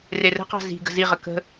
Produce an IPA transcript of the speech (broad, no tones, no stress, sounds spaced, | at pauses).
r e r ə̤ q ɑ̤ z i̤ ɡ ə̤ z i ʁ ə k ə̤